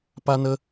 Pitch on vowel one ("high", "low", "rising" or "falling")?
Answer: high